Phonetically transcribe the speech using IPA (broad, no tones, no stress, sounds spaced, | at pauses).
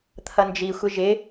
t̪ʰ ʌ n d͡ʒ i xʷ ɪ ʒ ɪ